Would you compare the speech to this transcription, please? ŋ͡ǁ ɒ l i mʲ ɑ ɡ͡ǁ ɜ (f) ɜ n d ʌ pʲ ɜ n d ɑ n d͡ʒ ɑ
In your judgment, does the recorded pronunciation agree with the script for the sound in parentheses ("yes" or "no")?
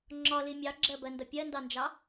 no